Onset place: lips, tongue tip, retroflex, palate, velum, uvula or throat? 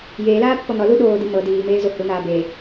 palate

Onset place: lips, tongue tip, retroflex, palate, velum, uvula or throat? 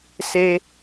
tongue tip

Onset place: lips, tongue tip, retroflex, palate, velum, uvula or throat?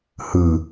throat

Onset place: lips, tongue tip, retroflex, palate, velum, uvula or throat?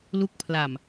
tongue tip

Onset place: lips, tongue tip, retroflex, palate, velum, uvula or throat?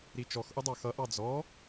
tongue tip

